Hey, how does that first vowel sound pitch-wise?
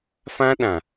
high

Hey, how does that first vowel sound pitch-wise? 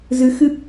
rising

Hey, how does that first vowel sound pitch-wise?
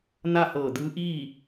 falling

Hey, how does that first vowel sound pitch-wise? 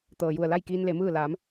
low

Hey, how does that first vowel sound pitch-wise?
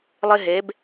high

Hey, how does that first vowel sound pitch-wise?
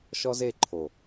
high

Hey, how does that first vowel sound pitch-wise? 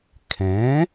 rising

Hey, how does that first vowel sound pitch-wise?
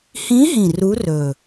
rising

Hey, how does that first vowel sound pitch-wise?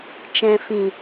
low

